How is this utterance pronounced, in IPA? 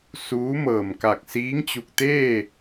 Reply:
s uː˧˥ m ɤː˧˩ m k a˧˩ k̚ s iː˧˥ ŋ t͡ɕ u˧˩ k̚ t̪ eː˥˨

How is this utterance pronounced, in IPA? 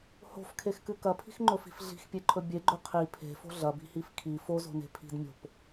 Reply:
h o̤ f kʰ e x k ɨ k ɐ pʰ i̤ x ŋ͡ǃ ɵ f i̤ f ɮ i̤ x pʲ e ǃʰ ɵ bʲ e ɡ͡ǃ ɵ qʰ i pʰ e̤ f o̤ ɮ ɐ b i̤ h i f kʰ i f o z o̤ n e̤ pʰ i̤ d mʲ o̤ p

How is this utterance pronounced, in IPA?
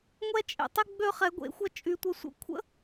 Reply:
ŋʷ ɛ˥ t͡ʃʼ ḛ˧ tˤ ɪ˥ ɡ͡b ø˥ χ ɛ˧˥ ɡʷ ḛ˧˥ xʷ ɐ˥ t͡ʃʼ y˧ tʷ ə˧˥ sʷ ə̰˧˥ kʷʰ ə̰˥

